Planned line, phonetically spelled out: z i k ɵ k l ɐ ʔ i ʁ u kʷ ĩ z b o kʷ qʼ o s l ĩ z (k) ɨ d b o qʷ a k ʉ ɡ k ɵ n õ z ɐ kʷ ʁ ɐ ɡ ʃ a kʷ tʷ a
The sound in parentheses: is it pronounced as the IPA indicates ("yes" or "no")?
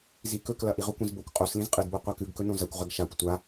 no